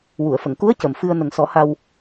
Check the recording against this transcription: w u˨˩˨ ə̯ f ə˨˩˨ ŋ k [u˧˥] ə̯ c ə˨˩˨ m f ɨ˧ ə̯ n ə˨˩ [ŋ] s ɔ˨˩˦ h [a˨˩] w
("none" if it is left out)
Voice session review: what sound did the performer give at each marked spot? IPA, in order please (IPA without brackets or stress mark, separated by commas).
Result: u˧˥, ŋ, a˧